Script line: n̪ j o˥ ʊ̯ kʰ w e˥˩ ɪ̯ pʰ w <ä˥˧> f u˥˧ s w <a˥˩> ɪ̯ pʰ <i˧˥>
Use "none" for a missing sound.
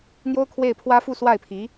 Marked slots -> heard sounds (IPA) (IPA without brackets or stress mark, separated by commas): ä˥, a˥˩, i˧˥